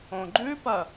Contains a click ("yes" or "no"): yes